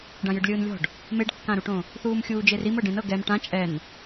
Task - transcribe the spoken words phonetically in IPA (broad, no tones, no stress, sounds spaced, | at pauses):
ɖ ã j ɯ ɖ lʲ ɯː n lʲ ɔ̤ ɖ | m e ɖ kː ã ɾ u ʈ õ | θ uː m xʲ uː d͡ʒ e r i m ɤ ɖ ẽ n ɤ ɡ ɛ m ʈ ã t͡ʃʼ ɛ n